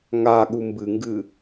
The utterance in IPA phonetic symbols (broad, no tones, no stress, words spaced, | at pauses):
ŋaɠu mbɨŋɡɨ